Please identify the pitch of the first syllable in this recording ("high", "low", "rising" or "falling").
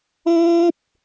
high